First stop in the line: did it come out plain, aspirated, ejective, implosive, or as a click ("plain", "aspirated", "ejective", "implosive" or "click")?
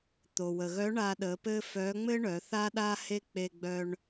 plain